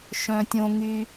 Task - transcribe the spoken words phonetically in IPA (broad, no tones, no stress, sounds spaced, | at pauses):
ʃ œ̃ tʲ õ ŋ y